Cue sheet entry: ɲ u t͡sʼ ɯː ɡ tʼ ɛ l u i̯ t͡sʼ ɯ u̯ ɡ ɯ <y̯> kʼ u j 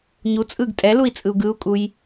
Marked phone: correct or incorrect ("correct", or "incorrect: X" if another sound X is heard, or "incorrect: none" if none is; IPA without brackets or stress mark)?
incorrect: u̯